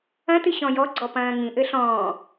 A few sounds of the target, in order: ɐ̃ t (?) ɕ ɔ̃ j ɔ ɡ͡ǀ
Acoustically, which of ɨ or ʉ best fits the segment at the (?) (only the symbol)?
ɨ